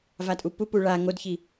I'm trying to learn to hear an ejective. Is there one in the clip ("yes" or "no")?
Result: yes